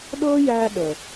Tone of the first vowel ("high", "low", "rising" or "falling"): high